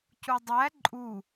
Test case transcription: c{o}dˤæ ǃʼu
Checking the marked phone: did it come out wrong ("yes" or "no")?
yes